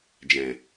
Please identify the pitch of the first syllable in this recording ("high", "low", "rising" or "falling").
low